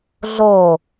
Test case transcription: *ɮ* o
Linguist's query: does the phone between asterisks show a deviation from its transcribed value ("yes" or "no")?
no